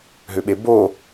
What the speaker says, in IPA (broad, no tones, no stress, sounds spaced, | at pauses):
ɦ ʏ ɓ e b o